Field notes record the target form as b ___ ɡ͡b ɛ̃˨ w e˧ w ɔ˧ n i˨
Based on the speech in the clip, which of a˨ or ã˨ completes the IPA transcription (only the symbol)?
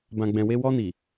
ã˨